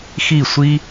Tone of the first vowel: falling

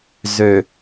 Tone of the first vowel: low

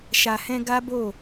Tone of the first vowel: low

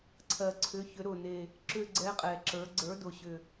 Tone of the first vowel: low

